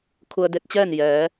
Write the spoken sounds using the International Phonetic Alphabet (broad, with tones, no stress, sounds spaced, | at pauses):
kʰ u˧ ə̯ d e˧˥ t̚ t͡ɕ ɛː˥˨ n j ɛː˩˧